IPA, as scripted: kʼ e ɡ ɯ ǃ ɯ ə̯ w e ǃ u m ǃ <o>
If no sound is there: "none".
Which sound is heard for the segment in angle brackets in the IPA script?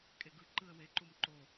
o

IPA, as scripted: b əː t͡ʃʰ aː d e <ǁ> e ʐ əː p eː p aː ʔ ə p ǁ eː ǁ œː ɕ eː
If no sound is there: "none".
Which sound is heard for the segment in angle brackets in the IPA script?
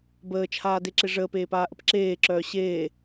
ǁ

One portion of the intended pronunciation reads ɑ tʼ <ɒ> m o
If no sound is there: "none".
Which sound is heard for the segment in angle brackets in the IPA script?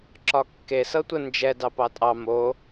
ɑ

